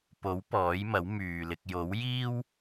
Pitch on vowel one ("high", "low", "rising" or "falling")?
rising